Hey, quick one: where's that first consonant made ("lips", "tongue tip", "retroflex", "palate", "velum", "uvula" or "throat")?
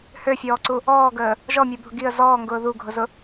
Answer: throat